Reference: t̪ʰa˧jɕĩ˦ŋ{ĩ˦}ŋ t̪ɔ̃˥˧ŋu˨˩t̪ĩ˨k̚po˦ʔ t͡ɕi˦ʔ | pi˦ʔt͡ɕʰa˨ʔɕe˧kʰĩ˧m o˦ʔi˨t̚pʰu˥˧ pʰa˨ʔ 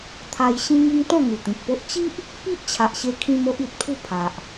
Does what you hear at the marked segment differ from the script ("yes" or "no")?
yes